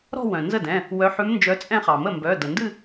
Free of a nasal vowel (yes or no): no